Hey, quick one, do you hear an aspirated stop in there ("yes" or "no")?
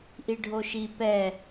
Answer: no